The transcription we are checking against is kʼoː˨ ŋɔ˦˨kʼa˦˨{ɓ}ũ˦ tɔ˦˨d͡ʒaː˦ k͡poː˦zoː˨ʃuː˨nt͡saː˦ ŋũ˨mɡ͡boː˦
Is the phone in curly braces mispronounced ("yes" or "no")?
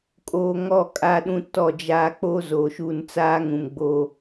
yes